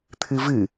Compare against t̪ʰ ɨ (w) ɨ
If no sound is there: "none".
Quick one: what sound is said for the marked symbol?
v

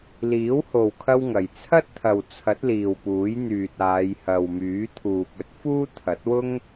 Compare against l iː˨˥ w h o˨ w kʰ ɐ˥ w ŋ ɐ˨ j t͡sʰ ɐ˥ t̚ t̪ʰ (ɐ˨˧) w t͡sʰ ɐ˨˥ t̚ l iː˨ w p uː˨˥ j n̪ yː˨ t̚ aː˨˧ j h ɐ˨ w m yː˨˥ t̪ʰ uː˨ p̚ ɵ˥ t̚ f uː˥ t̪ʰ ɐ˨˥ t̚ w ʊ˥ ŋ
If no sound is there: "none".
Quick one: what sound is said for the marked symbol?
ɐ˨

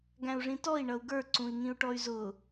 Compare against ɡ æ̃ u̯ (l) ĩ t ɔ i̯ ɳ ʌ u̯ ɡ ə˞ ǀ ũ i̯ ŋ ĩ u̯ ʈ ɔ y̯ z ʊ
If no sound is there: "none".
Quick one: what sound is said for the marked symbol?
ʐ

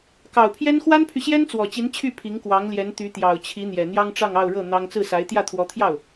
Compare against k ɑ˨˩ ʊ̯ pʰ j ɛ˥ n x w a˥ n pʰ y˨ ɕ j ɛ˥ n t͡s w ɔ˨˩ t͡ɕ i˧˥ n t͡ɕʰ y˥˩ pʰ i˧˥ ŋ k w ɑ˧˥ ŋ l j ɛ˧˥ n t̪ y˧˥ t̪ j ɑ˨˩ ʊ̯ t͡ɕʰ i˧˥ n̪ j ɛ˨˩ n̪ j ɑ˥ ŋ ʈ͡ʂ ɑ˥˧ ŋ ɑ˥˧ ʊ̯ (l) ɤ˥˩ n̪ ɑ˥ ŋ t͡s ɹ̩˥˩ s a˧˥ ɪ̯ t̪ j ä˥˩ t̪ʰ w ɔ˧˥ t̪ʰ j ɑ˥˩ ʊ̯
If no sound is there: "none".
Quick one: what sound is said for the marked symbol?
ɻ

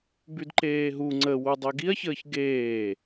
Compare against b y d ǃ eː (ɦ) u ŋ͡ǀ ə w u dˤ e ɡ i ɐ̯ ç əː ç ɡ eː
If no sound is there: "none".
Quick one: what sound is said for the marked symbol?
ɦ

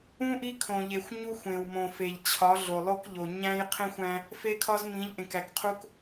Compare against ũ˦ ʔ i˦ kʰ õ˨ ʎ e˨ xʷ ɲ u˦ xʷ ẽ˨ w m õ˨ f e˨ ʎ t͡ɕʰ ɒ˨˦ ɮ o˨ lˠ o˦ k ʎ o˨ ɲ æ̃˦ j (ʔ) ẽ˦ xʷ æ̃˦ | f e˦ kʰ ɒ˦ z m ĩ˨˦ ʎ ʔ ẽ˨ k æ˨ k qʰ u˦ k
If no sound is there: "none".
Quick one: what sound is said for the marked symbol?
qʰ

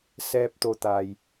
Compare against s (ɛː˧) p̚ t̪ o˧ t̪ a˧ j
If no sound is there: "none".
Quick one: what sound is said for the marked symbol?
ɛː˧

